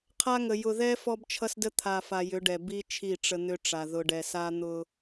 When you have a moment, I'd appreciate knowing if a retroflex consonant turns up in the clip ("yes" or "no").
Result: yes